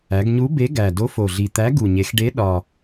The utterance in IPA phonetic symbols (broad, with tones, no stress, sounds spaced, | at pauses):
æ˩˧ ɡ ɲ u˨˥ b e˨˥ ɡ æ˨˩ d o˨˥ f o˨˩ ɮ i˨˩ t̪ æ˨˥ ɡ u˨˩ ɲ e˩˧ x ɖ e˨˥ ɗ ɒ˨˩